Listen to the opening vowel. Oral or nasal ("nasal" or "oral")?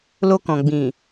oral